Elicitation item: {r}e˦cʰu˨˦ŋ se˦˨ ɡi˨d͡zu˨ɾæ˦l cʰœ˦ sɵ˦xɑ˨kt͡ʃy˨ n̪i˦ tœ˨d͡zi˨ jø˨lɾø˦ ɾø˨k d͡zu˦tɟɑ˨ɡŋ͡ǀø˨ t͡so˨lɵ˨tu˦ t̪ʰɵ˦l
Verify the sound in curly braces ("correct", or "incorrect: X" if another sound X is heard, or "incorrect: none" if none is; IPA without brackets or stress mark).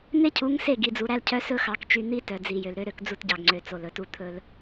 incorrect: n̪